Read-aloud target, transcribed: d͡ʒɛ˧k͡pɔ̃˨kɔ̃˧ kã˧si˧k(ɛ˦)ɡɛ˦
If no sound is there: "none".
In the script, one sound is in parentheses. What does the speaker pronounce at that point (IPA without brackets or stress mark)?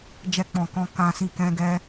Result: ɛ̃˦